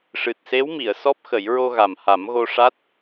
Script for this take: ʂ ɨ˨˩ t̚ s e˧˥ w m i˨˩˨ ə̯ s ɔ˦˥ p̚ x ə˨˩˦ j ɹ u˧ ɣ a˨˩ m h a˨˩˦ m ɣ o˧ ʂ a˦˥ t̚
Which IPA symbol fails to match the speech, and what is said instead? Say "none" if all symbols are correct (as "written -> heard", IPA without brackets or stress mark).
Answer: u˧ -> o˧